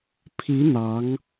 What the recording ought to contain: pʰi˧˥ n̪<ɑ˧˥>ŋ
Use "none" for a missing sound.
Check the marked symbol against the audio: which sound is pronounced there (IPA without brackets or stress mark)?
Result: ɑ˧˥